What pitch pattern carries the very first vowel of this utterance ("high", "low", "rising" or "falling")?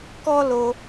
high